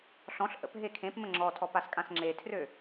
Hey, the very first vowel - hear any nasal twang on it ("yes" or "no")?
yes